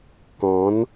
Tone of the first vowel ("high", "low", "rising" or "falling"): rising